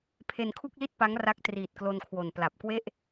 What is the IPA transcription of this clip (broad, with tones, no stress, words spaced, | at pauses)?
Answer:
pʰe˧nkʰu˥˩k̚li˥˩t̚pa˦˥ŋ ra˦˥k̚triː˨˩t̚klo˧nkʰwo˨˩n pla˨˩p̚kwe˥˩ʔ